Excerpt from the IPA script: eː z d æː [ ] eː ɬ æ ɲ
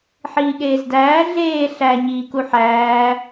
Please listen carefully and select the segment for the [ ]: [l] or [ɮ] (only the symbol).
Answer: ɮ